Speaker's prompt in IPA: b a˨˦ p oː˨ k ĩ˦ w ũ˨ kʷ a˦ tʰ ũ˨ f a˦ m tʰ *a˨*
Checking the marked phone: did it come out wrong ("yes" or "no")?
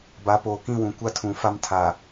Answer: no